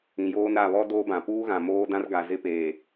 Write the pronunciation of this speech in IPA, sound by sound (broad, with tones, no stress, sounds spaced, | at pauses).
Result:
ĩ˨ j oː˦ n ɾ a˦˨ β ɔ˦ d oː˦ b ã˨ p uː˦ ɣ ã˨ m oː˦ d ã˦ r ɡ a˨ z ɪ˦ p eː˨